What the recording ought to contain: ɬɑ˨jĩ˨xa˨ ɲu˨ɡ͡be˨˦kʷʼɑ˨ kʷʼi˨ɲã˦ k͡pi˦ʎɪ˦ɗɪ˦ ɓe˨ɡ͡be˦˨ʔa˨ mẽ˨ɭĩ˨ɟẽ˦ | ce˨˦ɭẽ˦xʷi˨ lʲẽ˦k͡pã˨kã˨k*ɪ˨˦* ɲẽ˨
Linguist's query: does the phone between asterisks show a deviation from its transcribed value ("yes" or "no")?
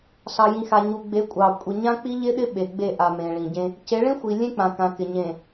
yes